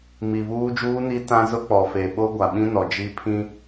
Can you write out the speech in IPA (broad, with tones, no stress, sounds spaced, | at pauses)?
m i˨ β uː˦ d͡ʒ uː˦ n i˦ t ã˦ z ʊ˦ k͡p ɔ˨ f e˨ ɓ o˦ ɡʷ a˨ ɓ ĩ˦ n ɔ˨ d͡ʒ i˦ pʰ ĩ˦